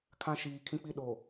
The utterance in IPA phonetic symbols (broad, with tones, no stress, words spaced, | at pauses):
kʰã˦ ʃiː˨ kʰĩ˦k͡pi˦ɗo˨